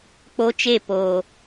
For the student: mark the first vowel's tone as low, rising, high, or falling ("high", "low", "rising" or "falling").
high